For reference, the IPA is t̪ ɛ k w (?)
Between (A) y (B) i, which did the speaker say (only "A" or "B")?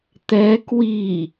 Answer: B